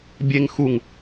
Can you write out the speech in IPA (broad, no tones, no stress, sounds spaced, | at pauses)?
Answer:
bʲ e ŋ x u ŋ